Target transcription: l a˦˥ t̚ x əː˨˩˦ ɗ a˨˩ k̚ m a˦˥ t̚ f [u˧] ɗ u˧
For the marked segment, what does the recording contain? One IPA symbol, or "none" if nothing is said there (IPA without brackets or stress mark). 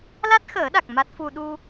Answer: u˧